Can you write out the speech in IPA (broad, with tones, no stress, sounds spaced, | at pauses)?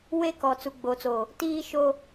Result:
w e˦ k ɔ˨ t͡s u˨ ɡ͡b oː˨ t͡s o˨ | t iː˦ ʃ o˦